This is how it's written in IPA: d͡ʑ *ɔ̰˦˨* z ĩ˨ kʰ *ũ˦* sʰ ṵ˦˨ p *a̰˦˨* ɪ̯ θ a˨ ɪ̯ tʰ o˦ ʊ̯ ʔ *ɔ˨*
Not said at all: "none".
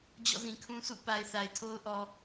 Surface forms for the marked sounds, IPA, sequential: ɔ̰˦˨, ũ˦, a˨, ɔ˨

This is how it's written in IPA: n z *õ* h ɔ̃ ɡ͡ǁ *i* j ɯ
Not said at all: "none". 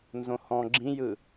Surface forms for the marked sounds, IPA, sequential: õ, ĩ

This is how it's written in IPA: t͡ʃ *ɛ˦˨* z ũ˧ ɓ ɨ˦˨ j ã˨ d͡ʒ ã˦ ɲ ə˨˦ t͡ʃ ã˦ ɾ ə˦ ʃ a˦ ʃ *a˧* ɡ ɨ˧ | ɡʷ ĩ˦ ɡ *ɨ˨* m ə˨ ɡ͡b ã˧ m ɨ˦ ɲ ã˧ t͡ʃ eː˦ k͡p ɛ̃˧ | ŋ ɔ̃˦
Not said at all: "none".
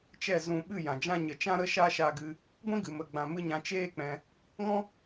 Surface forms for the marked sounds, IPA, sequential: ɛ˦˨, a˧, ɨ˨

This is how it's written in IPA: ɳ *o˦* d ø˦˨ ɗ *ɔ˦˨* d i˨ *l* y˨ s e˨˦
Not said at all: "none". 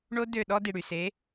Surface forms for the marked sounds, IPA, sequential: o˦, ɔ˦, ɽ

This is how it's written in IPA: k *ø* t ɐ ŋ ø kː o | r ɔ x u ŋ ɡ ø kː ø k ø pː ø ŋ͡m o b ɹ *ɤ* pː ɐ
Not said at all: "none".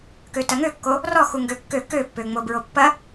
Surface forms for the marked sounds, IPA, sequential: ø, o

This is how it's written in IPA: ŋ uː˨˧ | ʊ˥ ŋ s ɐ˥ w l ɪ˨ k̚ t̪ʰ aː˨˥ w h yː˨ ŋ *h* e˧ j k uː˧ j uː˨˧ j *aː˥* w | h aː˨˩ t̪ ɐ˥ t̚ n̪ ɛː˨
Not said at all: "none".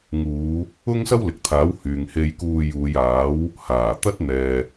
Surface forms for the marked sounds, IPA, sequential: h, aː˨˥

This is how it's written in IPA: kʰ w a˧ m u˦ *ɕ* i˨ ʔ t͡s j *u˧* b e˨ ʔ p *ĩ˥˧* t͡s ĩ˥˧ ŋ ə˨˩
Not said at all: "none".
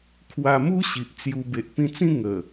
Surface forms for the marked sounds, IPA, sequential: ɕ, u˧, ĩ˧

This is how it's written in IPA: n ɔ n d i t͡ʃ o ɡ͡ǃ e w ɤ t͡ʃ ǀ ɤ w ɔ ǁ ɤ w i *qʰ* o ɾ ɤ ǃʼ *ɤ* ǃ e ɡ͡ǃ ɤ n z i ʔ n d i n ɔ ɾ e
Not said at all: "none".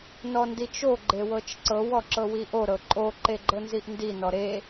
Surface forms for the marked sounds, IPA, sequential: ʔ, o

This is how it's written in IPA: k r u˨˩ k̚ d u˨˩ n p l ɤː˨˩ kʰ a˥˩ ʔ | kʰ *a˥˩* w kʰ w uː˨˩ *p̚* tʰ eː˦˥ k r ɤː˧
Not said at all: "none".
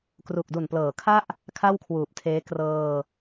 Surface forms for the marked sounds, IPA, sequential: a˥˩, p̚

